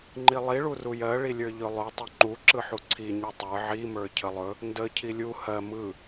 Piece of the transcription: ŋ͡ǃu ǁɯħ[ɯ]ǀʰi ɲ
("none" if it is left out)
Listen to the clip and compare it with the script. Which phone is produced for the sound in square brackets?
u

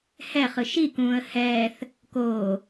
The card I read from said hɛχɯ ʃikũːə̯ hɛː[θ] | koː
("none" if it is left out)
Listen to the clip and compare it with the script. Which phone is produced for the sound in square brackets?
θ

